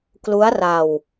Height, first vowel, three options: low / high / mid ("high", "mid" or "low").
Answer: high